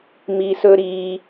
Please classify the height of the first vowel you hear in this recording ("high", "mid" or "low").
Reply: high